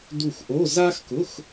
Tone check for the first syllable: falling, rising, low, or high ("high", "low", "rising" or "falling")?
falling